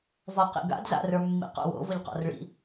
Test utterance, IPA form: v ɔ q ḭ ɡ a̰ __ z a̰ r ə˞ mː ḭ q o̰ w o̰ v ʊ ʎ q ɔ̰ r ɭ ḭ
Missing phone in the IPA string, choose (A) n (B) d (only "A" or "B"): B